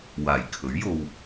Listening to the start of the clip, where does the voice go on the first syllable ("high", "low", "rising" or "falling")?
low